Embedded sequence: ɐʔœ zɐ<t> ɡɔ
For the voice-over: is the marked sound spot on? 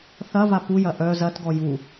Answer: yes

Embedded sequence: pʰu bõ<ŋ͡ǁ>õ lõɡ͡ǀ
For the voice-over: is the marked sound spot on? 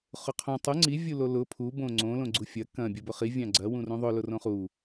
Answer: no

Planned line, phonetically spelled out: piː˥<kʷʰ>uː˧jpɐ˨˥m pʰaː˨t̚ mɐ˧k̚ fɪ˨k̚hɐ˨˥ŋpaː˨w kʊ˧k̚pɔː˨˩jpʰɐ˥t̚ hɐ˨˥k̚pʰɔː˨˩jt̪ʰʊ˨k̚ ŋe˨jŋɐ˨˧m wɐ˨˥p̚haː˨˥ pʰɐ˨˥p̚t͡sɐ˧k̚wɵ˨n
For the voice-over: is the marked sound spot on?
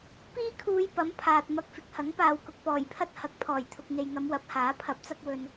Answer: no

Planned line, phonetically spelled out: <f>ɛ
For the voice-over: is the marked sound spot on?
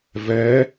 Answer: no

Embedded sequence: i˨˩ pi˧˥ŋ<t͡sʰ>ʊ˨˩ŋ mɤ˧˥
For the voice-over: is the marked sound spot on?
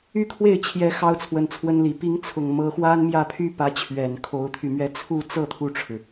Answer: yes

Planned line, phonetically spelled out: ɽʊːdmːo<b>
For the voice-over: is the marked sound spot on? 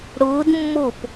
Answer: no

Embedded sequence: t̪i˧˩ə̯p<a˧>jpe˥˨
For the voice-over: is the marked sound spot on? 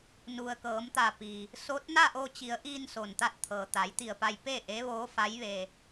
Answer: yes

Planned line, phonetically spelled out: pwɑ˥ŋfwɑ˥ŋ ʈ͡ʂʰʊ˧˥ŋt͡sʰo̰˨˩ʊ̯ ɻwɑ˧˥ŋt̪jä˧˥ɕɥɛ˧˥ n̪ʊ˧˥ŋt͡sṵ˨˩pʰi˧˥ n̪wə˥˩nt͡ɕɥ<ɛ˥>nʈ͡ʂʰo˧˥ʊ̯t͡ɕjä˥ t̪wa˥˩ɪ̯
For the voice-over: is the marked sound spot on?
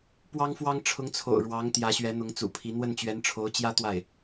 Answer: no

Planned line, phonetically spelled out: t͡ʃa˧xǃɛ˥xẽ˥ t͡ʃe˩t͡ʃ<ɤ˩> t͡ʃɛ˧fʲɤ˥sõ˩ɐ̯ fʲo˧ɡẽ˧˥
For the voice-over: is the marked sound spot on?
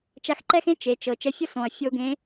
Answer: yes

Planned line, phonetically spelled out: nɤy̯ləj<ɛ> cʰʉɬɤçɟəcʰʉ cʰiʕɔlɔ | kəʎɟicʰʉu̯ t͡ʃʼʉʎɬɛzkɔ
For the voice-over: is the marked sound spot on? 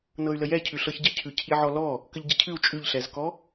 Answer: yes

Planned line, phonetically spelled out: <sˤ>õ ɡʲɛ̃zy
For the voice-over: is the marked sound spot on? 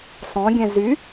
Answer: yes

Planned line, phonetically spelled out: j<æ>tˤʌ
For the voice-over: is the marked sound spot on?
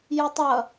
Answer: no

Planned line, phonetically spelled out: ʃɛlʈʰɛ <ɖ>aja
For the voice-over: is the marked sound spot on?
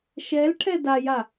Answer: no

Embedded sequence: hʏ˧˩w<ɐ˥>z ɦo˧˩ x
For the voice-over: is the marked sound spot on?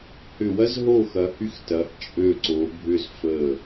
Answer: yes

